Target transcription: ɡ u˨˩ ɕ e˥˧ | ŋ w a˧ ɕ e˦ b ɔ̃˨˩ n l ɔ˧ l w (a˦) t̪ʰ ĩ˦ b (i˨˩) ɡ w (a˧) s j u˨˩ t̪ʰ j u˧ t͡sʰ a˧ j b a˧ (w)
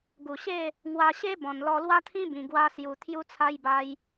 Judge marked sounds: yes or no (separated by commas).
yes, no, yes, no